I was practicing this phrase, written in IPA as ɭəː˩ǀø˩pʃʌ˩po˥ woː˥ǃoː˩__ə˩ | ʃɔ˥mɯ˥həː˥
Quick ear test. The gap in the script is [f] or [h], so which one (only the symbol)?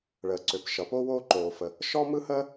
f